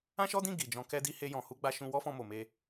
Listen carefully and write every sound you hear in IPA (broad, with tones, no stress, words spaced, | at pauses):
ã˦ʃɔ˦dĩ˦˨ ɡi˨d͡ʒɔ̃˧ kɛ˦di˦ he˦jɔ̃˧ hu˦ɡ͡ba˦ ʃũ˧wɔ˦fɔ̃˧ mo˨me˧